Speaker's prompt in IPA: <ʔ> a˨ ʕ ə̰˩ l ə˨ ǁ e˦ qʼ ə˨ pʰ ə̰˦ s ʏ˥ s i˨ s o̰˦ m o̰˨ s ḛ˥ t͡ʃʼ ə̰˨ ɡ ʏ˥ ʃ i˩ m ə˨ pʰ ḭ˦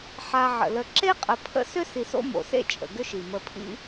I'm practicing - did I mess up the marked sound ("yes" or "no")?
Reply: yes